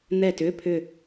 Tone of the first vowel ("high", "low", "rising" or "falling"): falling